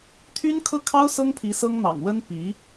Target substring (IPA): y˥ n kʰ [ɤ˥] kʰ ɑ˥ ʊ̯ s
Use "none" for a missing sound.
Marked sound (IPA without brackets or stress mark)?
ɤ˥